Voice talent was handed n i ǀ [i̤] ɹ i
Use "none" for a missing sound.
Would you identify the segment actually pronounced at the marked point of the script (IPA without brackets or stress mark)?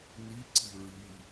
i̤